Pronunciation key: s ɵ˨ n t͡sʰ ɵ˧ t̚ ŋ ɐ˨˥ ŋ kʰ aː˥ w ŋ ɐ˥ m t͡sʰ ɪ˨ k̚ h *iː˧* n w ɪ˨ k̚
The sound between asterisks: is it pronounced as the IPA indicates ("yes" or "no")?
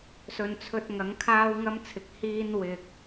yes